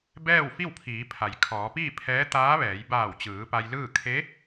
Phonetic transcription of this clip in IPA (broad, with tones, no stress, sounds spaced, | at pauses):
b ɛː˥˨ w f i˥˨ w pʰ iː˩˧ pʰ a˩ j kʰ ɔː˩˧ p iː˥˨ pʰ ɛː˧˥ t̪ aː˧˥ ʋ ɛː˩˧ j b aː˧˩ w t͡ɕ ɯː˩˧ p a˧ j l ɯː˥˨ kʰ e˧˥